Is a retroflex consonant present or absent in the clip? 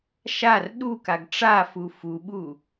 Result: present